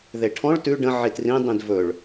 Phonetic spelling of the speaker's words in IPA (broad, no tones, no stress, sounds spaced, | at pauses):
ð e ʈʰ ɔ̃ ɭ t ʉ ɖ ə̃ ʕ i t r ĩ dˤ ĩ d v ɵ ɭ